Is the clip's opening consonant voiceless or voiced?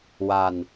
voiced